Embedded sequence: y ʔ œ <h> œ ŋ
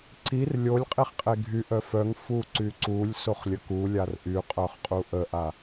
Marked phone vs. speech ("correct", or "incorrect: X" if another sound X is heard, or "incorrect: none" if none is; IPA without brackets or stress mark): incorrect: f